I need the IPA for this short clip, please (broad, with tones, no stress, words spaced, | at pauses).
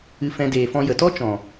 ɨ˧fɛ̃˧ deː˨fɔ̃˧jə˨tɔ˦ t͡ʃɔ̃˨